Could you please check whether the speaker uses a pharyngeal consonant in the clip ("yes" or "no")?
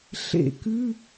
no